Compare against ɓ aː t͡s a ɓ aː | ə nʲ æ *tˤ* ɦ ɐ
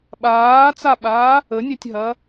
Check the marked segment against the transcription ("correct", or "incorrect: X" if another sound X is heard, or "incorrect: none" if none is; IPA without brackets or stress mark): incorrect: tʲ